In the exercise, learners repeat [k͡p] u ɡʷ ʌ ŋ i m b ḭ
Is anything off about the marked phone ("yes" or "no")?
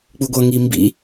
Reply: no